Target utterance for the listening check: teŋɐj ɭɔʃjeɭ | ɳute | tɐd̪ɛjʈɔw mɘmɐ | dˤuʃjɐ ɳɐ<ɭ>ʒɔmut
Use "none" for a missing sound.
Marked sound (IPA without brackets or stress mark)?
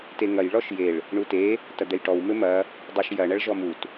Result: ɭ